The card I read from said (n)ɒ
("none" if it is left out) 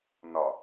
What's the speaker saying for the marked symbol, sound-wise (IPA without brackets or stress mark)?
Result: n